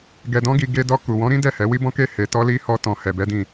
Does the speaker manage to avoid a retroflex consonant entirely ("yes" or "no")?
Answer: yes